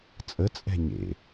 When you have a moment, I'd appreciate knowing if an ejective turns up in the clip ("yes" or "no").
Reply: yes